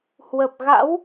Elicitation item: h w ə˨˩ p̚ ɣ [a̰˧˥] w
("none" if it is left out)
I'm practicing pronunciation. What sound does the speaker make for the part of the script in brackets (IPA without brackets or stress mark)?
a̰˧˥